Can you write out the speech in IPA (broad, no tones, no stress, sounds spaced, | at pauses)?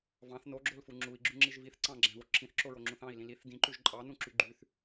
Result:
v ɑ̃ θ n o ɡ͡ǁ o l f u ŋ͡ǁ u i̯ ɡ͡ǁ ʉ ŋ͡ǁ i ʒ v i θ ǀ ɑ̃ ɡ͡ǁ æ̃ v o ǁʰ ĩ θ ǁ o ɹ o ŋ͡ǁ ũ θ ɑ̃ i̯ l ĩ l i θ d ĩ ǃ ʉ ʒ ǃʼ ɑ n ũ ǁ y ɡ͡ǃ y θ